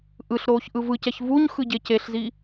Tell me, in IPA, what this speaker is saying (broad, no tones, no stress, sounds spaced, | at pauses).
ʔ ɯ ɬ ɾ oː ç ʔ ɯ v ɯ c ɛ ç v u ɲ x ɯ ɟ e c e ɬ z i